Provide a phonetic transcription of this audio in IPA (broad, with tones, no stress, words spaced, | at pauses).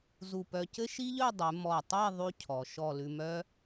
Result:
zu˧˩pœ˧cɘ˥ ʃi˥ʎœ˥˧dˤʉ˩˧ mɔ˧˩tˤe˥˧ ðˤʉ˥cʰɔ˩˧ ʃɔ˧˩ lʉ˧mœ˥